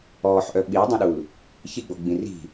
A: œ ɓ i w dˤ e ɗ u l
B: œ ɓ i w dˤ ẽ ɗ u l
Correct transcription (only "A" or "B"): B